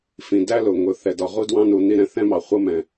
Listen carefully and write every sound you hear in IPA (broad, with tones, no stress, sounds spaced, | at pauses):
f ĩ˨ d æ˦ l ʊ˨ ŋ ʊ˨ θ ɛ˨ d ɒ˨ ʁ u˦ d w ɑ̃˦ n u˨ n i˦˨ ɾ ɛ̃˦ θ ɛ̃˦ m ɑ˨ χʷ ʌ˦ m ɛ̃˨